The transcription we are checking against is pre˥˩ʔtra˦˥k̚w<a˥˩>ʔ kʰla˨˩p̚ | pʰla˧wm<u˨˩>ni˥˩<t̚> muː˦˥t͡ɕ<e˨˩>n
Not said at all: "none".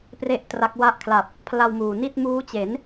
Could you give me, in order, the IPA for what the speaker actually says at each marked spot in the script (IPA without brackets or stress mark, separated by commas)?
a˥˩, uː˨˩, t̚, e˩˦